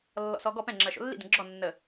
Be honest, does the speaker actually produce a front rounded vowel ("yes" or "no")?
no